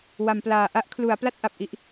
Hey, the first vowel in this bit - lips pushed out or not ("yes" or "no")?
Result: no